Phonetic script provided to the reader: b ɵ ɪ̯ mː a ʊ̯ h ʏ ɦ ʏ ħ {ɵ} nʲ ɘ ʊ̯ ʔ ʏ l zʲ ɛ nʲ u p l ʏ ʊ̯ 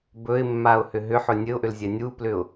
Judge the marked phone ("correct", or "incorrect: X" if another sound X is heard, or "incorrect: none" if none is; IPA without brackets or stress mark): correct